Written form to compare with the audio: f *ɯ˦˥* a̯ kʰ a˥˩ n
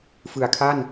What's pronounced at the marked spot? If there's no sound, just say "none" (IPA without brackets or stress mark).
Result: ɯ˨˩